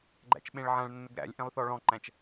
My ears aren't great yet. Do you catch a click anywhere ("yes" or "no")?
yes